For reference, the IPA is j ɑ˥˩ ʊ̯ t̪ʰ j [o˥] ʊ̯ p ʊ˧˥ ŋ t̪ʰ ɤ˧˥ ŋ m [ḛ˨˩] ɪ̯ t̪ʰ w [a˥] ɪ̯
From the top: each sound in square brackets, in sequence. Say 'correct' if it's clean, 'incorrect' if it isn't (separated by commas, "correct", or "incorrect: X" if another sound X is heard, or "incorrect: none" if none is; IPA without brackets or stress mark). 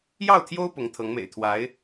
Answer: correct, correct, incorrect: a˧˥